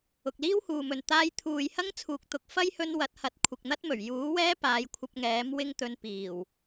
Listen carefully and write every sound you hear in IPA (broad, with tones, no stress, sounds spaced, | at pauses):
ʊ˨ k̚ l iː˥ w h uː˨ m ɵ˨ n t̪ aː˧ j t̪ʰ uː˨ j h ɐ˥ ŋ t͡sʰ uː˧ k̚ t̪ ʊ˧ k̚ f ɐ˥ j h ɵ˧ n w ɐ˨˥ t̚ h ɐ˨˥ t̚ kʷʰ ɪ˨ k̚ n̪ ɐ˥ t̚ m ɵ˨˩ ɥ j uː˨˥ w ɛː˥ p aː˨˧ j kʷʰ ɐ˧ p̚ ŋ ɛː˨˥ m w ɪ˥ ŋ t̪ ɵ˧ n p iː˨˩ w